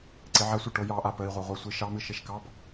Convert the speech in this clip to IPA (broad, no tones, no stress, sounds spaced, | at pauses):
ǀ e ʕ a sʷ i ʈ o j ɑ ʔ a p ə i̯ ʁʷ a ʁʷ a sʷ i ʃ ɑ m ɨ ʃ e ʃ k ɑ p